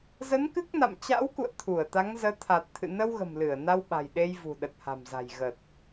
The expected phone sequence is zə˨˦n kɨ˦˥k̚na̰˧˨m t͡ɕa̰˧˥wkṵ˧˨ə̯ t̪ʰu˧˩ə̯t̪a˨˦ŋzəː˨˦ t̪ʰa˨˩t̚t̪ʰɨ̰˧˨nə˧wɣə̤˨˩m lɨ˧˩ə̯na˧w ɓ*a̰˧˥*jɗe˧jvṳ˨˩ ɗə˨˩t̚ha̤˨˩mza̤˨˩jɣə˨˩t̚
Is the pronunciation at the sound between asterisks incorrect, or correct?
incorrect